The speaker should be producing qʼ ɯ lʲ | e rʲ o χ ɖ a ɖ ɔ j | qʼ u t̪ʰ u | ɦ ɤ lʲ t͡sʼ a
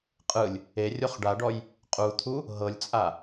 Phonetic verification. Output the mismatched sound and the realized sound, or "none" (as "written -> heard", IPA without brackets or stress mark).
none